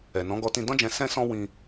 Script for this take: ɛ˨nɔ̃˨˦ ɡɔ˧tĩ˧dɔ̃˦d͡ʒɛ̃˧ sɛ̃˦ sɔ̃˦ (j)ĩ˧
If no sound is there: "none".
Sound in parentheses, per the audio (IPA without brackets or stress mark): w